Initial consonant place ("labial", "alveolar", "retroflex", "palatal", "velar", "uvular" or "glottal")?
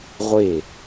uvular